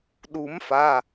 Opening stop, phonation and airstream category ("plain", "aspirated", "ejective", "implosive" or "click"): implosive